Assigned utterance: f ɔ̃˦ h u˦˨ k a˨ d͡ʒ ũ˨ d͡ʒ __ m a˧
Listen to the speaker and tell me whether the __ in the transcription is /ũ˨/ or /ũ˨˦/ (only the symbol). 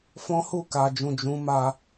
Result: ũ˨˦